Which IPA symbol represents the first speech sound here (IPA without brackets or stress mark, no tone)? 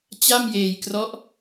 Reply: t͡ɕ